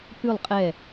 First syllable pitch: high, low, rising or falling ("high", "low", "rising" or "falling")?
falling